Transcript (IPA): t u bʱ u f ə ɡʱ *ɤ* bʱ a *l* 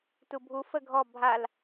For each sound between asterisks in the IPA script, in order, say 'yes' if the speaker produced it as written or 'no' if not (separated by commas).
no, yes